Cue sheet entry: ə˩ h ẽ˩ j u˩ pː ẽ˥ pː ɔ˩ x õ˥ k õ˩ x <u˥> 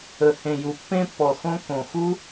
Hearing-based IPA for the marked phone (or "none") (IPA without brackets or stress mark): u˥